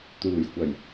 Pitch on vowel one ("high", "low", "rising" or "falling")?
low